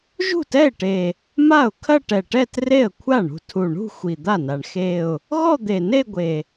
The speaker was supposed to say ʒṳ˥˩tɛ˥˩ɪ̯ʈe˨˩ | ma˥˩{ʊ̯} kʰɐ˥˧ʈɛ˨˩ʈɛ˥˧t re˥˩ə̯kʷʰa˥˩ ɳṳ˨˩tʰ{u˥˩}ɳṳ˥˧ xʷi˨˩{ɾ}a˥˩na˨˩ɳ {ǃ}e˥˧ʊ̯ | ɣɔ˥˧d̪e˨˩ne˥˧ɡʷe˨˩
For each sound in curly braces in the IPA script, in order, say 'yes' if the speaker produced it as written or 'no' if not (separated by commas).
yes, no, no, no